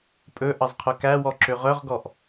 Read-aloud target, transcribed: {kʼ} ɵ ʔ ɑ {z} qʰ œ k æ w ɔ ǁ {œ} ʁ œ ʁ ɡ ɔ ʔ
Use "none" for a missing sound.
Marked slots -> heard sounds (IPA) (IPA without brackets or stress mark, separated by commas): pʼ, z, ø